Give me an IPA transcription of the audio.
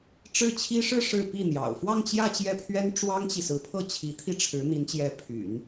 ʈ͡ʂ ɻ̩˥˩ t͡ɕʰ i˥ ʂ ɻ̩˥˧ ʂ ɻ̩˥˧ p i˥˩ n̪ j ɑ̰˨˩ ʊ̯ f w ɑ˥˧ ŋ t͡ɕ j ä˥˧ t͡ɕ j ɛ˥˩ pʰ ɥ ɛ˥ n ʈ͡ʂ w ɑ˥ ŋ t͡ɕ i˨ s ɹ̩˧˥ pʰ ɤ˥˩ t͡ɕʰ i˧˥ t̪ʰ i˥˩ ʈ͡ʂʰ ɻ̩˧˥ n̪ i˧˥ n t͡ɕ j ɛ˧˥ pʰ y̰˨˩˦ n

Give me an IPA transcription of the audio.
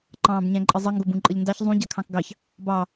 ǃ ɑ̃ː b ɲ æ̃ ǃʼ ə zˤ ə ŋ ɡ o b ũ ǃʼ ə ʎ n d ɑ ç zˤ ũ ɟ a kʰ ɑ̃ k ɡ ɑ ç | b ɑ

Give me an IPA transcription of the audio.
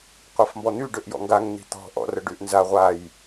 qʷ a f m b ɔ n̪ y ɖ ø ʔ j ɔ̰ ŋ ɡ a ŋ n̪ i̤ t̪ ɔ̤ ʔ ɔ̰ r ə ɖ y ʔ n z a ʁʷ a j

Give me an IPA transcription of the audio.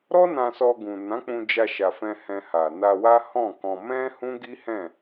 ɾ ɔ˦ n ã˧ s ɔ˧ ɡ ũ˨ n ã˨˦ k͡p ũ˧ d͡ʒ a˧ ʃ a˨ f ɛ̃˧ h ɛ̃˧ h a˨ n a˧ w a˦ h ɔ̃˦˨ k ɔ̃˧ m ɛ̃˦ h ũ˦ ɡ i˦ h ɛ̃˦˨

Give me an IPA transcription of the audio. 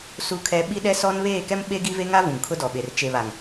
s u˦ kʰ ɛ˦ ɓ i˦ ɗ ɛ˦ s ɔ˦ n β eː˦˨ k ɛ˦ m ɓ e˦ ɡ i˦ v e˦ ŋ a˦ v ũ˨ ŋ kʰ ʊ˦ d ɔ˨ ɓ e˨ r t͡ʃ e˨ β a˨ ŋ

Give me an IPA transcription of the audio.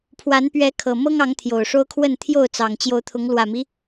pʰ w a˨˦ n p ɥ ɛ˨˦ kʰ ɤ˨˩ m ɤ˦ ŋ ɑ˨˦ ŋ t̪ʰ j o˨˩ ʊ̯ ʂ o˦ ʊ̯ kʰ w ə˥˨ n t̪ʰ j o˥˨ ʊ̯ t͡s ɑ˨˩ ŋ t͡ɕ j o˨˦ ʊ̯ t̪ʰ ʊ˨˦ ŋ l w ä˨˩ m i˦

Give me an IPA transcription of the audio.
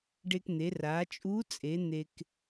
ɖ e˧ k n̪ e˩˧ r a˩˧ t͡ʃʼ u˧˥ t͡sʼ e˩˧ n̪ e˧ k

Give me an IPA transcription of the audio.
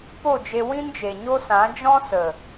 p o˦˨ d͡ʒ e˧ w ĩ˦ n d͡ʒ e˨ ɲ o˦ s ã˨˦ d͡ʒ ɔ̃˦ s ə˨

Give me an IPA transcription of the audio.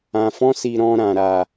ã˨ f ɔ̃˧ s i˨ ɾ ɔ̃˧ ɾ ã˨ ɾ a˨

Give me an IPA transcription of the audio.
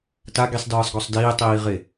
t a ɡ i sˤ d ɯː sˤ ɡ ɔ sˤ d iː tˤ iː ʁ e

